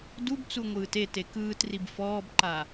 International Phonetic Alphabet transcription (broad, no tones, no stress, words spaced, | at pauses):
dubt͡su ŋʷɯːtete kɯːtrib fɔːbǃa